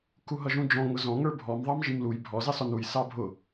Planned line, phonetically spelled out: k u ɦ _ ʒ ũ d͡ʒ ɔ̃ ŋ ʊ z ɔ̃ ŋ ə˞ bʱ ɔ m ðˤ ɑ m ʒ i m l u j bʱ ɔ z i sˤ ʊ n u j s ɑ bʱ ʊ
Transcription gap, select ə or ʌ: ʌ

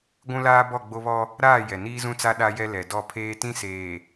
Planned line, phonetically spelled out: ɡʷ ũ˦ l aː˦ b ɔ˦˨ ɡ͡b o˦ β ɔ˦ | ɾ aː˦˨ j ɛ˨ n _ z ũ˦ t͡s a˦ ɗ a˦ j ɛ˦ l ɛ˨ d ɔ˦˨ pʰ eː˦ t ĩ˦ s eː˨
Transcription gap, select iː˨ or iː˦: iː˦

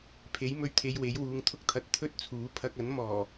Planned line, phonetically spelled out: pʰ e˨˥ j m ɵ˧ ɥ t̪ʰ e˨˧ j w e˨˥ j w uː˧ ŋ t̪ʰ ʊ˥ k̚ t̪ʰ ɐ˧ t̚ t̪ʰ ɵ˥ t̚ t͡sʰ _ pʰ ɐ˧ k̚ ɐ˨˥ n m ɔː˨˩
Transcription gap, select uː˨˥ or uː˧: uː˨˥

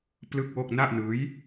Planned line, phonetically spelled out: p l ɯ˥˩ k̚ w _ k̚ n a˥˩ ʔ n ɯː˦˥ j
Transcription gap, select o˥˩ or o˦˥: o˥˩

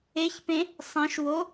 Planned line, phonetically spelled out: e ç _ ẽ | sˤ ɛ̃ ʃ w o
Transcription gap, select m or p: p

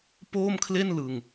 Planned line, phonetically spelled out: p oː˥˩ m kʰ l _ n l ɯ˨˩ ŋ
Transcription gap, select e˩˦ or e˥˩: e˥˩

